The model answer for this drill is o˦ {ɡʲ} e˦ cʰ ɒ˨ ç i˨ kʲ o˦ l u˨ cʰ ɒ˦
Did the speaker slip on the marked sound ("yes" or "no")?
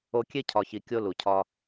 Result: yes